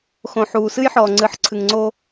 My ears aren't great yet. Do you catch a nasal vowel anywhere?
yes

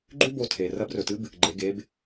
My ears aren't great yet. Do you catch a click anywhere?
yes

